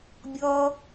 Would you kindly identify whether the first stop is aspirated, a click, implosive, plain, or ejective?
plain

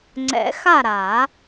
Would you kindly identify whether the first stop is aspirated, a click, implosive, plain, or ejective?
click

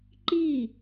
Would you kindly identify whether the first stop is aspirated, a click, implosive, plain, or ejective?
click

